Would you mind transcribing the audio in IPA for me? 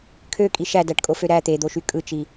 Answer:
kʰøkʼi ʃædæʈkʼofø ɾæ t̪ed̪oʃy kʼɯt͡ʃi

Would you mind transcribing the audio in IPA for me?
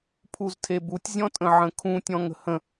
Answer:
pʰuztʰebutʲ zʲɔ̃tʼə̃ʕə̃kʰũ tʲɔ̃ŋə̤hə̃

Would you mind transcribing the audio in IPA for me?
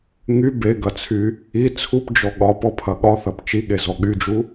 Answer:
ŋy beɡɐt͡sʰy | i t͡sʰupd͡ʒɔ ɠɒpɔpʰɐ ɠɒθɐp t͡ʃiɠezɔ ɠyd͡ʒu

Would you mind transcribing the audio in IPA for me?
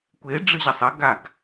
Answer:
kʷe ɖ͡ʐɨʑɐsˤɐ ɡaɡ

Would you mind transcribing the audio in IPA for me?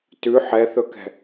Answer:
tʉ ħɛθɵkɛ̤

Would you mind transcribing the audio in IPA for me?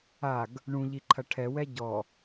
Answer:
aɡ | ɳũʎiǃʰɐ ʈʰɛwɛ ɟɔ

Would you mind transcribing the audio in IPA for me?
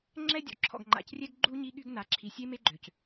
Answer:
ŋ͡ǁɛ˦dʲɔ̰˨ǁʰɔ̰˨ɡ ŋ͡ǃa̰˨crʲɛ˦ɡɡ͡ǃu˦ ɲi˦ɠy˦ɡna˨˦ ǁʰi˨sʲe˦me˦ ɡ͡ǃø˨c

